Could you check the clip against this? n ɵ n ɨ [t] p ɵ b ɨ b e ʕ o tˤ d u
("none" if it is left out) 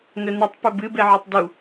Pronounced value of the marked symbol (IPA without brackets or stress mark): tˤ